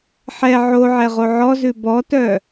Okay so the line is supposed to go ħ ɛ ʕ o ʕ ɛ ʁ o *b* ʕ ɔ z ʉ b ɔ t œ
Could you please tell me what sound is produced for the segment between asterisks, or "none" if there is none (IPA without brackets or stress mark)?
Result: none